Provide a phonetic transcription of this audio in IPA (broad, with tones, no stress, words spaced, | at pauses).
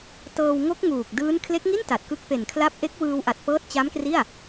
tɤː˧w ŋo˦˥k̚ŋuː˨˩k̚ dɯː˦˥n kʰle˦˥k̚ŋi˥˩n ta˨˩t̚ kɯ˦˥k̚ pe˨˩nkʰla˦˥p̚ ʔe˦˥k̚wɯː˧wʔa˨˩t̚ pɤː˦˥t̚t͡ɕa˦˥mkri˥˩a̯